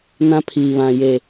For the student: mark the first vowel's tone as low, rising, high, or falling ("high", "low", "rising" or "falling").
high